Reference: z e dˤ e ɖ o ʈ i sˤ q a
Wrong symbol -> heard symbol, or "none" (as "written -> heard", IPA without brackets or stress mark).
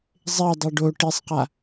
z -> zˤ